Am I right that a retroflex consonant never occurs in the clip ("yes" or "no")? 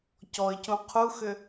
yes